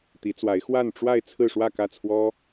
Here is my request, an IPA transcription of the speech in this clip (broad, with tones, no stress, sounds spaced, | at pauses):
t̪ i˧˥ t͡s w a˧˥ ɪ̯ x w a˥˧ n ʈ͡ʂ w a˥˧ ɪ̯ t͡sʰ ɹ̩˥˧ ʂ w ä˥˧ k ä˥˩ t͡sʰ w ɔ˥